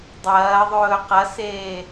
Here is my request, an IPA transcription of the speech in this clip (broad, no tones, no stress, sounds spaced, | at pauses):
dˤ ɐː ðˤ ɵː q ɐ s eː